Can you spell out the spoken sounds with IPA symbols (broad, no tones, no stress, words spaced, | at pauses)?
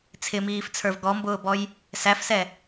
t͡sʰɪmiːft͡sʰə˞v ɡɔmbʊːbɔj | sæfsɛ